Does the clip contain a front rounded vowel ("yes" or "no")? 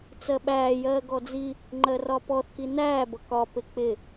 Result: no